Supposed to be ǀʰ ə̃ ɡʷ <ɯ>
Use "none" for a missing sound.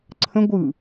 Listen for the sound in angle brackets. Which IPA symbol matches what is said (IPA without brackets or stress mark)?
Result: ɯ